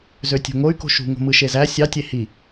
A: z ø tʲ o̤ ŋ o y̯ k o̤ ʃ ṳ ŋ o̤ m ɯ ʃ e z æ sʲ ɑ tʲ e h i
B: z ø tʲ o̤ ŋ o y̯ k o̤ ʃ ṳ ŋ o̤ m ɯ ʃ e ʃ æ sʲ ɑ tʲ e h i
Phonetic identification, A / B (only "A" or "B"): A